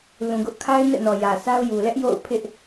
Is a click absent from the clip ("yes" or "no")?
yes